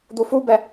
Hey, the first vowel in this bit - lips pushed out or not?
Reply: yes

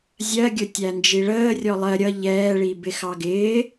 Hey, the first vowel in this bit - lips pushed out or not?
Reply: no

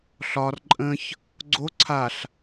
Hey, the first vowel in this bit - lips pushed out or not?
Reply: yes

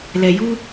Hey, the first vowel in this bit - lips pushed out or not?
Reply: no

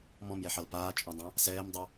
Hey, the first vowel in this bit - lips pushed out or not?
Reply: yes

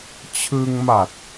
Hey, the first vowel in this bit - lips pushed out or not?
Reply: no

